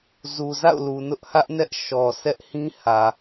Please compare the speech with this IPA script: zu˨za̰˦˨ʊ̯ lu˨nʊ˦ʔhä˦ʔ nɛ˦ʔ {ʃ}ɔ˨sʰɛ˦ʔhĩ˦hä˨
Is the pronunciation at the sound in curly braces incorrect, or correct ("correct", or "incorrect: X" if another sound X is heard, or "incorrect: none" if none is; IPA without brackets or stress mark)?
correct